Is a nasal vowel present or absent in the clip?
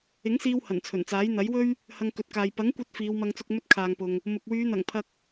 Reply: absent